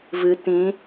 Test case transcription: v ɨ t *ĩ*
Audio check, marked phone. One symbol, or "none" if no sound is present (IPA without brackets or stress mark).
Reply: ĩ